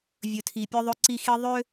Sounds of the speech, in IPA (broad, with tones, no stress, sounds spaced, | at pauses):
vʲ ɵ˨ tʰ i˨ pʲ œ˦ ðˤ ɵ˦ ǀ i˦ x i˦ ðˤ ø˦